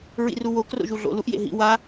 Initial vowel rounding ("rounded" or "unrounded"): unrounded